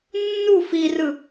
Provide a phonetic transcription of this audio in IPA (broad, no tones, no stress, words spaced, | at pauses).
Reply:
nːu firɯ